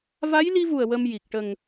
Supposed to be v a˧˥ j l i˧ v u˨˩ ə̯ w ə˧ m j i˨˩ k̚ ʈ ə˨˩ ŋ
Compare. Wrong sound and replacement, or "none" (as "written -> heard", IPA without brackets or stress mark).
none